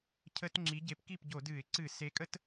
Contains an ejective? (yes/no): yes